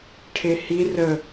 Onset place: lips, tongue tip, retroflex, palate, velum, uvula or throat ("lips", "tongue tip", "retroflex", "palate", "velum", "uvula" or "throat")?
retroflex